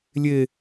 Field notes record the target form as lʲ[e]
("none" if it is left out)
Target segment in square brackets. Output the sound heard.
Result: e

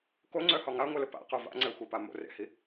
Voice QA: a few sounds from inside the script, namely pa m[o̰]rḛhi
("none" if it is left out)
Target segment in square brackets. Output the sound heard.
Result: o̰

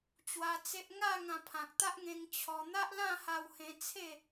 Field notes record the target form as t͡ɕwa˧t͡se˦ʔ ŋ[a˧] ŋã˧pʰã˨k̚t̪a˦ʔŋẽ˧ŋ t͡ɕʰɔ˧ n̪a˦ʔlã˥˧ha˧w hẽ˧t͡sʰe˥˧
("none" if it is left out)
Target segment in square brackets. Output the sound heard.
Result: a˥˧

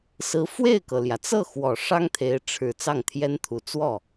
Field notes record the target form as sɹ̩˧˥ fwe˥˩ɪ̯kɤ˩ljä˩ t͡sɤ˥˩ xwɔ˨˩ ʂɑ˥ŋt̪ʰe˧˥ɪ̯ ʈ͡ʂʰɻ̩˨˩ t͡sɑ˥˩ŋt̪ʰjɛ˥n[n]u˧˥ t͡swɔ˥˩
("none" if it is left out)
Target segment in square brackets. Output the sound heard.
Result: t̪ʰ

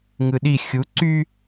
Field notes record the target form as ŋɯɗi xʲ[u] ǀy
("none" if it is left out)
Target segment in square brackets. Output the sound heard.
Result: u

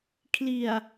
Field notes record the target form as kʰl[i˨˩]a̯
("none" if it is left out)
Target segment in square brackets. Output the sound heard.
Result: i˨˩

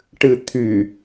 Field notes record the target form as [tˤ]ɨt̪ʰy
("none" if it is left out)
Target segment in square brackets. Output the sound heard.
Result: ʈ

